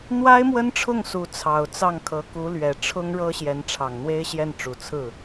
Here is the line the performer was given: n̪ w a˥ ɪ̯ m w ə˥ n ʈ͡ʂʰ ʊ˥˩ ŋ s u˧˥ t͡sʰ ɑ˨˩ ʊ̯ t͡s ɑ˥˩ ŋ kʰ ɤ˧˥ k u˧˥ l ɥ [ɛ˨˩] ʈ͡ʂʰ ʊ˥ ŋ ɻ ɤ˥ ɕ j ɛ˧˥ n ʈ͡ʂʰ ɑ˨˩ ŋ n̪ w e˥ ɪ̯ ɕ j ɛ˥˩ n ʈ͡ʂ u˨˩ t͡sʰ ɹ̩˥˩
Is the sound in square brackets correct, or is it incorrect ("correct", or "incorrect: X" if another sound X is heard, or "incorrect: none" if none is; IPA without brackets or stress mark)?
correct